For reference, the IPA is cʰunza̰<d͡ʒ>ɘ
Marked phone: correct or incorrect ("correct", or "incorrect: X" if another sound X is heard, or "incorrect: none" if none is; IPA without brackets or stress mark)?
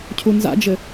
correct